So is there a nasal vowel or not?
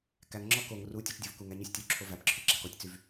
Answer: no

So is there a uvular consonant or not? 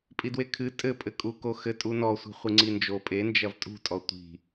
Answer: yes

